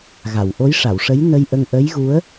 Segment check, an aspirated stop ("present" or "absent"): absent